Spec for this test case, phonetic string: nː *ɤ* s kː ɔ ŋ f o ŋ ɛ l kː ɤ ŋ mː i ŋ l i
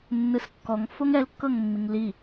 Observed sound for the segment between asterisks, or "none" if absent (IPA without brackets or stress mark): ɯ